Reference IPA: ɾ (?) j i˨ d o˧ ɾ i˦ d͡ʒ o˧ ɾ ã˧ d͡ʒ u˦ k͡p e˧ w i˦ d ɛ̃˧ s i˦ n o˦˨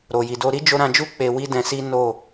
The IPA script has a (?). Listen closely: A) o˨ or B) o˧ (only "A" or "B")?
A